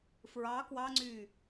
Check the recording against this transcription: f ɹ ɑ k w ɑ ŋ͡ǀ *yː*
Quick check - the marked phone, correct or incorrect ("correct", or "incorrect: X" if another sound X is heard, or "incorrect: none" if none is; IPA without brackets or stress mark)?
correct